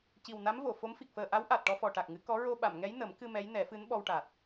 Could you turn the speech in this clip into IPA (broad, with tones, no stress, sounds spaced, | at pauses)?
c i˨˩ w n a˧˥ m v o˨˩˨ f o˧˥ m f i˨˩ k̚ f əː˨˩ ʔ a˧˥ w ʔ a˨˩ t̚ ʈ ɔ˧ f ɔ˨˩ ʈ a˨˩ k̚ ŋ ɨ˨˩˦ k ɔ˧˥ ɹ o˧ ɓ a˨˩˨ m ŋ ɛ˧˥ j n ə˨˩˦ m k ɨ˧ m ɛ˧˥ j n ɛ˨˩˦ f ɨ˧˥ n ɓ ɔ˧ w ʈ a˨˩ t̚